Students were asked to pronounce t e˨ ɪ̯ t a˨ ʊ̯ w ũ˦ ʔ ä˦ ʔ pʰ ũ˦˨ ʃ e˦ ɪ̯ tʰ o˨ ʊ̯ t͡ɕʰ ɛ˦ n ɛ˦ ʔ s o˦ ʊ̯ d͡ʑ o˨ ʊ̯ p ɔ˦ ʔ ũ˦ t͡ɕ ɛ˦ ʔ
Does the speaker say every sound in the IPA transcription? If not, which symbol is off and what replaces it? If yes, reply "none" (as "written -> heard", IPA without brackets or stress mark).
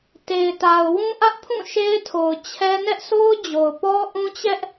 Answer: none